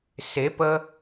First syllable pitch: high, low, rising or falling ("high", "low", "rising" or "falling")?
rising